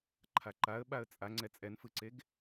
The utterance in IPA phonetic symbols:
ǃʰaǃaə̯ɓaə̯ t͡sʼaŋ͡ǀɛ t͡sʼɛnfɯǀeɡ

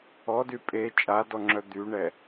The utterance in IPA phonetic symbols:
ɔdy pʼe t͡ʃʼadɔŋ͡ǁœ d̪yɳɛ

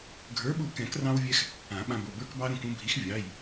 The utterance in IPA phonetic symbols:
ɡʱə˞˨˥ɓu˧˩ kɛ̃˨˩˦krɑ̃˧wvʲɛ˧x | ã˨˩˦ɓã˧bo˩˧˩ bə˞˧kbɑ˧ɾũ˧˩k ũ˧bʱi˨˥x vʲɑ˩˧˩j

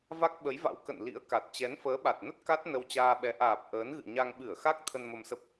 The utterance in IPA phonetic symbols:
va˦˥k̚ɓə˨˦jva̰˧˥w kə̰˧˨n lḭ˧˥ə̯ka˨˩t̚ t͡ɕɛ˨˦nfəː˨˦ɓa˨˩t̚nə˦˥t̚ ka˦˥t̚ nə˧wt͡ɕaː˧ɓɛ˨˦ ʔaː˨˩p̚ ʔəː˨˦nɣɨ̰˧˨ɲa˧ŋ ɓɨ˧˩ə̯xa˦˥k̚ t̪ʰə˧nmə˧msə˦˥p̚

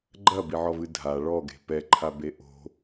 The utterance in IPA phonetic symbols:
ɡ͡ǃɐbiʕɔvɨ dʱa ɭɔɡe̤ pɛǃʰabe ʔo̤

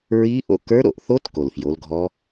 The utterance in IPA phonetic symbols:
ɹiː˦˥ʔo̰˧˥˧ kə˞˦˥ɾo̰˥˩ʔθo˦˥t ko˨˩lfjo˨˦lɡʱɔ˦˥

